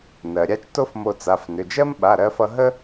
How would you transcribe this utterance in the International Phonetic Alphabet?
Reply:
n ɜ˩ ɾʲ a˥ t͡ʃ t o˥ f m o˧ t͡s a˩˧˩ f n ʏ˩˧˩ d͡ʒ ɜ˥ m ɓ a˩˧˩ ɾ ɜ˧ f ʌ˧ ɦ ə˥

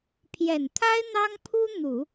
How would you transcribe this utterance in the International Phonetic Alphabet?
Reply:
pʰ j ɛ˨˩ n t̪ʰ a˥ ɪ̯ n̪ ɑ˥ ŋ pʰ u˥ n̪ u˨˩˦

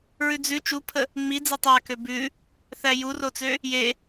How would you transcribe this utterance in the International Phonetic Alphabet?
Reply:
ɹ ʉ d͡z ʉ t͡ʃ u pʰ ə | ŋ͡m i d͡z e tˤ a k ø b ʉ | θ æ j u r o t͡s ø | j e

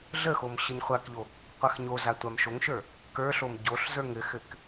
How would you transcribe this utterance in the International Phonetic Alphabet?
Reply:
ɮ ə x o m ɕ ə ɲ χʷ a k ʎ o | qʷ a x ɲ o z a tʷ a m ʃ o ŋ ʃ ə˞ | k ə˞ ɬ o m ɟ o ɬ z ə˞ ŋ ɘ x ɘ k

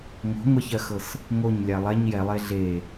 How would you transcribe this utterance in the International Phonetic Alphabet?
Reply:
ŋ o̤ ŋʷ ɛ ç ɜ x ɤ s | ŋ o ɲ lʲ a lˠ ɛ ɲ j ɛ lˠ e ɮ e

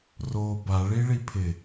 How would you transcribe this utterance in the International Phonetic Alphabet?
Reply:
r o b a ɭ i ɭ i pʰ ɪ

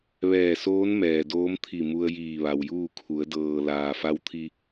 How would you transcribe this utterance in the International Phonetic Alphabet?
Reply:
ʋ ɛː˧˩ s oː˧˥ n m ɛː˩ d oː˧˥ m t̪ʰ i˧˩ m u˧ ə̯ j iː˧˩ ʋ a˩ w j uː˥˨ kʰ u˩˧ ə̯ d ɤː˩ l aː˩ f a˧ w t̪ʰ i˧

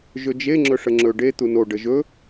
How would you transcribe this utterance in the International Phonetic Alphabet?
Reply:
ʒ ɵ d͡ʒ e ŋ͡ǁ ɵ ʂ ə ŋ͡ǁ ɵ ɖ e t̪ u n o ɖ ə ʒ ɵ

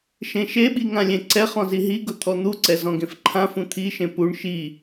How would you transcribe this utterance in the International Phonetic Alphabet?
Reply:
ʃ ẽ ʃ e ɓ i ŋ ã lʲ ẽ ǀ ɛ χ ɔ̃ z i ɦ i ɡ ʊ t̪ʰ ɔ n̪ u ǀ ɛ z ɔ̃ ɡ ẽ f ǃʰ ã f ũ t̪ʰ i ʃ ẽ p u ɳ ʃ i

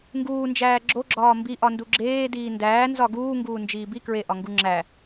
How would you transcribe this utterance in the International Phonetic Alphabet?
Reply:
ŋ ɡ uː n d͡ʒ æː ɡ͡ǁ o ɡ͡ǁ ɒː m b i ʔ ɒ n d u ɡ͡ǁ eː d iː n d æː n z ɒ ɡ uː ŋ ɡ uː n d͡ʒ iː b i k ɹ e ʔ ɒ ŋ ɡ u ŋ͡ǁ æ

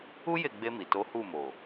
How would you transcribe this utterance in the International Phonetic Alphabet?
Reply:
u˦ j e˦˨ ɡ͡b e˧ m i˨ t o˨˦ h u˦˨ m o˨

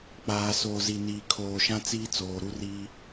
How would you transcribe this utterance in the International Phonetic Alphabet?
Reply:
k͡p aː˨ s oː˨ z i˨ n iː˨ kʰ oː˨ ʃ ã˦ t͡s iː˦ t͡s oː˨ ɾ u˦ r iː˦

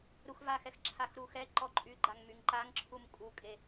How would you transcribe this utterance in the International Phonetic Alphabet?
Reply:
ɾ u x v a x ɛ x ǁʰ a x ɾ u x ɛ ǃ ɔ ǃʼ y ɡ͡ǃ a ŋ m y ŋ ǃ a ŋ ǁʰ u m kʼ u kʼ e

